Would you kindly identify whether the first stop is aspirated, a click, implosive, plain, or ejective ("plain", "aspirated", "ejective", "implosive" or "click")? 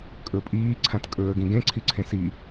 ejective